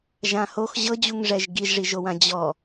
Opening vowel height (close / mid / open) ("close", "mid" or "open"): open